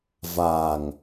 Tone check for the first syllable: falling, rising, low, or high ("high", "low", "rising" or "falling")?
low